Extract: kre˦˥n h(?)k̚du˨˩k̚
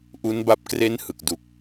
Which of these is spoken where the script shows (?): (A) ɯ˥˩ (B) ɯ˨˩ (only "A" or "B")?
B